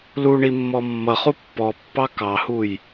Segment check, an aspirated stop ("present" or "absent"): absent